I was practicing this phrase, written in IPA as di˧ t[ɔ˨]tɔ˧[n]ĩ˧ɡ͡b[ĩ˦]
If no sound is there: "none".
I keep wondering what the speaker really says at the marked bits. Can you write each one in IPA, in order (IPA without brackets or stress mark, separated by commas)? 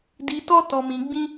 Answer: ɔ˦, m, ĩ˦